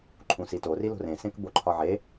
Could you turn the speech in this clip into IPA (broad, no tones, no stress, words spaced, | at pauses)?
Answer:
ǃʰũsito rilo̤rẽ sẽkboǃʰɒʕe